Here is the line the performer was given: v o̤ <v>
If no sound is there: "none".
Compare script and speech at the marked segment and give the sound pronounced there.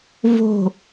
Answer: none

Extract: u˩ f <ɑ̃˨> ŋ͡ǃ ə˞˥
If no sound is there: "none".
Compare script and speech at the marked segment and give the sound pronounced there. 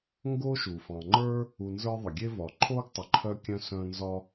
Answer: ɑ̃˨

